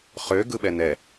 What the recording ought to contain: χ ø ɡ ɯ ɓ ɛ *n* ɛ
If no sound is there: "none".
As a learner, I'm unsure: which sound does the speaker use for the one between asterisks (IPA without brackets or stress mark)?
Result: n